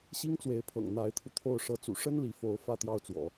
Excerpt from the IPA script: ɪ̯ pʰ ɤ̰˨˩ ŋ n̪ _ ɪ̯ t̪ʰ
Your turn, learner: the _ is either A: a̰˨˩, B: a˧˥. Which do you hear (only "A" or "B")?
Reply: B